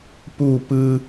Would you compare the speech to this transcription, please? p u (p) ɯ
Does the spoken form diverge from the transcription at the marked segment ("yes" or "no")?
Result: no